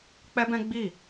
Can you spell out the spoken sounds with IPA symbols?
k͡p ɛ˦ b ɛ̃˦ ɡ͡b i˦˨

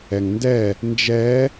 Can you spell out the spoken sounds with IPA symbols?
ɛ ŋ n d ɛ | n d͡ʒ ɛ

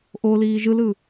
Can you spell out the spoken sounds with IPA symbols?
ʔ o l iː ʒ ɯ l ɯ

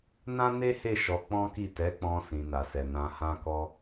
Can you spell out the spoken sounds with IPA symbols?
n ã˦ n e˦ h e˦˨ ʃ ɔ˧ k͡p ɔ̃˦ k i˦˨ t ɛ˨˦ k͡p ɔ̃˧ s ĩ˨ n a˨ s ɛ˨ n ã˧ h ã˦ k ɔ˦

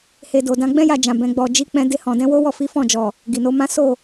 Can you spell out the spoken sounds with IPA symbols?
h e˧ d o˧ d ã˧ ɡ͡b ɛ̃˦ j a˧ d͡ʒ ã˨ b ɛ̃˨˦ ɡ͡b ɔ˧ d͡ʒ i˦ k͡p ɛ̃˦ d e˧ h ɔ̃˨ d ɛ̃˨˦ w o˦ w ɔ˦˨ f i˨˦ f ɔ̃˦˨ d͡ʒ ɔ˨ | ɡ i˨ n o˨˦ m ã˦ s o˦˨

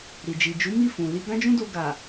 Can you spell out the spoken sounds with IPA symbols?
ɾ i˨ d͡ʒ i˨ d͡ʒ u˨˦ m i˦˨ f ũ˨ l i˧ ɡ ã˦ d͡ʒ ũ˦ d o˧ ɡ a˨

